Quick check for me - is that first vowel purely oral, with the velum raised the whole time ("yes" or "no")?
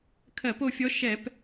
yes